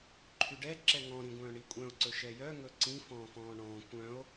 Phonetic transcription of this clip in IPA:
ǃʰyɖɛ ǁɛŋɔ̃ ɾĩɡʷœ̃ːɳikʷʼœ̃o̯ ǀɵʃɛjœ ŋɵǀĩ fɔ̃ːfɔ̃ːɳɔ̃ː kʷœ̃o̯

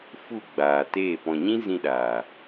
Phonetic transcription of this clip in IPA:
fu˦˨ɡ͡baː˨teː˦˨ pɔ̃˨ɲĩ˦ zĩ˧ɗaː˨

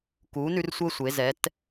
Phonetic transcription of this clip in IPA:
kuː˨˥nʉ˦rsʷəː˦ sʷe˩˧ zɛ˩˧t

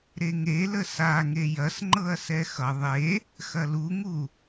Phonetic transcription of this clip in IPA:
ɾeŋelə saŋe jɐsŋ͡ǃɤɐ̯sɛ xʌ ðˤe | xɐluŋu

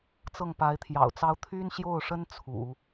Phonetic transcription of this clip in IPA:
t͡sɤ˥˩ŋpa˧˥ɪ̯t̪ʰjɑ̰˨˩ʊ̯t͡sɑ˥ʊ̯ t̪ʰy˥nɕjo˥˩ʊ̯ʂə˥n t͡sʰṵ˨˩˦

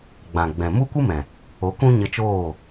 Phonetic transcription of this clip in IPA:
ɡ͡bã˨ɡ͡bɛ̃˨ mu˦kʷɨ˦mɛ̃˨ | o˨˦kũ˦ɲə˧t͡ʃoː˦˨

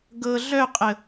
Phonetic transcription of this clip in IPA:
ɡɤ ɮœqʼə

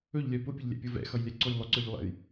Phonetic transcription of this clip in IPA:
ɵʎlʲœ pʊpʲʊʎlʲɛ̰pʲʊ vɛ̰xʌjlʲɛǀʊj lˠʊǀœʎlˠɛ̰j

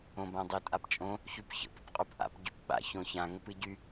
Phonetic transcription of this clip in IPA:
õbãdˤʏ tʼapt͡ʃʼõ | çypçə̰p əpqʼupʔa̰p ɟypɓa̰ çõçã ŋəpɨɟy

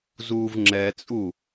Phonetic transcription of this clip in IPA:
zuːvŋ͡ǁɛt͡sʼu

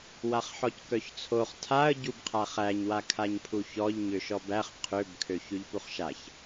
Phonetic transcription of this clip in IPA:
waχħɔckœçt͡sʰoχ tʰaə̯ ɟubqʰaχæɲ wakʰaɲpʰuçɔʎ ɲøʃɔbæχ qʰøb kʰøçʉʎpuχʃaç

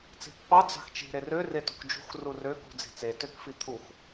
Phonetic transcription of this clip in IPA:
t͡si̤pːɑ d͡zɑ̤xt͡ʃi̤ ɾerø retṳkd͡ʒṳx rurø kṳd͡zi̤t͡se tøkfit̪ʰux

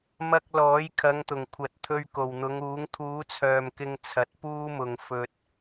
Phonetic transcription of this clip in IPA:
mɐ˧k̚ lɔː˨˥jkʰɐ˨˧ŋt̪ʊ˨˩ŋ kʷʰɐ˨t̚t̪ʰɵ˧ɥ ko˨˩wn̪ʊ˨˧ŋuː˨˥ŋ t̪ʰuː˨˥t͡sʰœː˨˩mkɪ˨ŋ t͡sʰɐ˨˥t̚puː˥mʊ˨ŋ fɵ˧t̚

